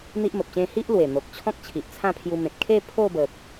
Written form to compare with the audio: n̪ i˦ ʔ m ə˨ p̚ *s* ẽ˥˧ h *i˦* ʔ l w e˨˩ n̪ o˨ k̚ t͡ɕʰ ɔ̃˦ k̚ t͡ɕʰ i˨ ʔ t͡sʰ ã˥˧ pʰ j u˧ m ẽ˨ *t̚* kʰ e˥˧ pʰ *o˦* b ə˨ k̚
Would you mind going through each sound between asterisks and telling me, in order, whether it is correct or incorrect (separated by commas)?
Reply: incorrect, correct, correct, incorrect